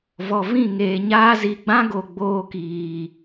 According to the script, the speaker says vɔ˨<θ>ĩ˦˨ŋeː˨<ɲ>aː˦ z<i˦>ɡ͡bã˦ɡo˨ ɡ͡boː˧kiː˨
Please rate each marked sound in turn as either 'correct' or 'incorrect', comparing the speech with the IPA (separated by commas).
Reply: incorrect, correct, incorrect